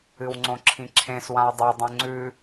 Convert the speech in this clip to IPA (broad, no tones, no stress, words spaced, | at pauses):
ɨwŋ͡ǀõǁʰĩǁʰẽs wãe̯dˤu dˤũŋ͡ǀʉ